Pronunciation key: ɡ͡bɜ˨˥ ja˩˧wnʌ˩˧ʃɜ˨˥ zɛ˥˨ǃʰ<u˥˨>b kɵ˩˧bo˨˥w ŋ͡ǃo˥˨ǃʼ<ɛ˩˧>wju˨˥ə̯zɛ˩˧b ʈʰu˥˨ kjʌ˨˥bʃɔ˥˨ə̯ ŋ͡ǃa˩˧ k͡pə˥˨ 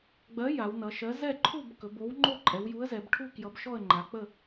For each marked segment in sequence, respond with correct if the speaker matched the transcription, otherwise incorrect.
correct, correct

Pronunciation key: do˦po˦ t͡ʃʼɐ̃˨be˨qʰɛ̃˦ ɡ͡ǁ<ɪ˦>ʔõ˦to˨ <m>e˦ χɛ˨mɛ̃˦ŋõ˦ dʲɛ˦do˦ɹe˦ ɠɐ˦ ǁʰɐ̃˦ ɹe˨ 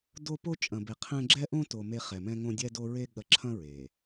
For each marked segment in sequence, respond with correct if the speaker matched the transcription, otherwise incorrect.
incorrect, correct

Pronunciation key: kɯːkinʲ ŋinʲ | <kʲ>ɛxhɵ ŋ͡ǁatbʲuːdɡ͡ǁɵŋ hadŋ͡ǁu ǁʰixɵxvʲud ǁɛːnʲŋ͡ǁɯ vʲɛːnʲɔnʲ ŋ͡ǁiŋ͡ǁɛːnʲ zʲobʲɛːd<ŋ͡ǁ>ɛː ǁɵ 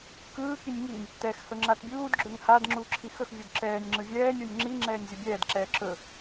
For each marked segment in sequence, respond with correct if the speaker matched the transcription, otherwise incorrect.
incorrect, incorrect

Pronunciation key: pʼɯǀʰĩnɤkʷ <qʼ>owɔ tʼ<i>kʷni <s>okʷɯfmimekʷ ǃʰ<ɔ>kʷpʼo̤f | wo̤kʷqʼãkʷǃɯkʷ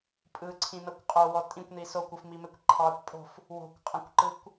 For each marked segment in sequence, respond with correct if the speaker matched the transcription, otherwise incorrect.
correct, incorrect, correct, incorrect

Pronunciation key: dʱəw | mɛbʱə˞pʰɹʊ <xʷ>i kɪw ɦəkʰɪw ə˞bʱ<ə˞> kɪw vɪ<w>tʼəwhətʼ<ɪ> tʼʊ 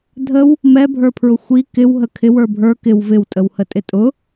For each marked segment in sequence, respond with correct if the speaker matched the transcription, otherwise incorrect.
correct, correct, correct, correct

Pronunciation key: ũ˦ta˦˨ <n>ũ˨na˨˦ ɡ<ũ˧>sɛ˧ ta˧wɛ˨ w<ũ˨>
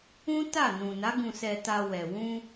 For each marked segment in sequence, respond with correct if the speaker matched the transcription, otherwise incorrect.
correct, correct, incorrect

